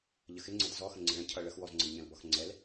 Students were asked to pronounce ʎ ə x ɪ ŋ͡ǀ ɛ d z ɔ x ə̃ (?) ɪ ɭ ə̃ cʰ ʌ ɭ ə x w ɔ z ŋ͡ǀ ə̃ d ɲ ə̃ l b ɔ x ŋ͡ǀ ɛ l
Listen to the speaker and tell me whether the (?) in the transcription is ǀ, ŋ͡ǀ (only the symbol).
ŋ͡ǀ